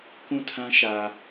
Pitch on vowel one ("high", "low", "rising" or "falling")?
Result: falling